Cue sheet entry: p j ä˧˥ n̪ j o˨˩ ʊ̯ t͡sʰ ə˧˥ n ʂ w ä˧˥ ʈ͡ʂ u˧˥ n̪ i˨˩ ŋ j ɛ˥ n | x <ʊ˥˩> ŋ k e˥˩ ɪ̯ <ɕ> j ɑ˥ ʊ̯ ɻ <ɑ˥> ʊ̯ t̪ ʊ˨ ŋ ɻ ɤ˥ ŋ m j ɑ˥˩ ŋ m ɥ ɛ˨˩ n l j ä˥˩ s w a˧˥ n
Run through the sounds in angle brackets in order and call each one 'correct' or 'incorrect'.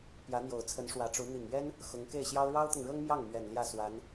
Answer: incorrect, correct, correct

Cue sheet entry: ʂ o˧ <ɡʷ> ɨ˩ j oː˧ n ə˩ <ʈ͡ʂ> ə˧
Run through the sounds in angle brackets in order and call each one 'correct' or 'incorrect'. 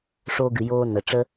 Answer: incorrect, correct

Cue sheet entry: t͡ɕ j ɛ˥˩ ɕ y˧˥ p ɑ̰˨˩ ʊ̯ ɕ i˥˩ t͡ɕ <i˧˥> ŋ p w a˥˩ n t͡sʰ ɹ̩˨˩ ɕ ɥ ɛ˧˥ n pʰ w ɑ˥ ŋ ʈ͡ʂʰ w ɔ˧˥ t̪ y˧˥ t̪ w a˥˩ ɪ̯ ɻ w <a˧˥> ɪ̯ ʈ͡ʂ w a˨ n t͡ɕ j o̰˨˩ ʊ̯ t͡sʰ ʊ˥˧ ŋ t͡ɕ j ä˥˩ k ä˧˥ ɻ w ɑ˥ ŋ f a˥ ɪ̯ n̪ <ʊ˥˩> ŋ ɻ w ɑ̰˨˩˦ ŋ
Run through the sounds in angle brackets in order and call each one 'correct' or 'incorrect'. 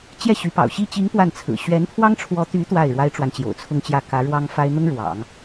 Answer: correct, incorrect, incorrect

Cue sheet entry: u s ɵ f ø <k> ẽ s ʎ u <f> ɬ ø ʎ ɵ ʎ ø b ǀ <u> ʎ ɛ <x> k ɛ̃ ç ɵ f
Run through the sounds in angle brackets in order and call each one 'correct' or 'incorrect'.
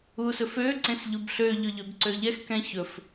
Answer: incorrect, incorrect, incorrect, correct

